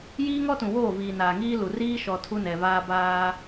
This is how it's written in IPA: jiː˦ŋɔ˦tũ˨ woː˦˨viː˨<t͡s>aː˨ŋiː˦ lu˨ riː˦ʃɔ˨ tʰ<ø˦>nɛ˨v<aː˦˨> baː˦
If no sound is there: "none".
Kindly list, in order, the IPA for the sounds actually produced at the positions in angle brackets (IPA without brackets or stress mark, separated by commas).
n, u˦, aː˦